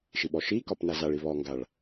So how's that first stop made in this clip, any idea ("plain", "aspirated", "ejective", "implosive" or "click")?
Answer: implosive